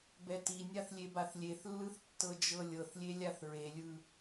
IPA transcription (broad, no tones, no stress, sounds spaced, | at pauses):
b ɛ t i nʲ a θ lʲ e b a θ lʲ e θ lː ɯ θ tː ɤ d͡ʒ ɤ lʲ ɤ θ lʲ e lʲ a θ ɹ e lʲ ɯ